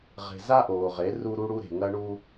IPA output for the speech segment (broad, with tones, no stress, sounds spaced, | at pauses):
ʁ e̤˨ z a˦ ʔ oː˨ ʁ e˨˦ r u˦ ɾ u˦ ɽ u˦ ɾ e̤˨ ŋ ɐ˦ ɳ u˦